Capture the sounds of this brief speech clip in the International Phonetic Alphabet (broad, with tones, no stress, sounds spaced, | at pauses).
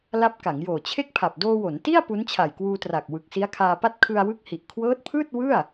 l a˦˥ p̚ k a˩˦ ŋ j oː˨˩ t͡ɕʰ e˥˩ k̚ pʰ a˨˩ p̚ d oː˧ w o˩˦ n t i˥˩ a̯ p u˦˥ n t͡ɕʰ a˨˩ j k w uː˧ t r a˨˩ k̚ w ɯ˨˩ k̚ s i˦˥ a̯ kʰ aː˧ p a˥˩ t̚ kʰ ɯ˧ a̯ w ɯ˦˥ k̚ h i˨˩ ʔ kʰ w ɤː˦˥ t̚ pʰ ɯː˥˩ t̚ w ɯ˥˩ a̯